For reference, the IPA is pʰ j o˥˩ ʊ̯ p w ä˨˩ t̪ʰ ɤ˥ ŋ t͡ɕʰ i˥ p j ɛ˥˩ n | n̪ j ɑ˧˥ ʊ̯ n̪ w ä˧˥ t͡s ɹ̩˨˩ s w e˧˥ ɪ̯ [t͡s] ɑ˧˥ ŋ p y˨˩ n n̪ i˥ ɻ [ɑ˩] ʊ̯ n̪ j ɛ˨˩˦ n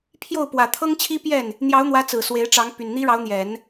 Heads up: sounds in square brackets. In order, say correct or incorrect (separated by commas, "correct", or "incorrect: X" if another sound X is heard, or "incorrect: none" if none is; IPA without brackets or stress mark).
incorrect: ʈ͡ʂ, incorrect: ɑ˧˥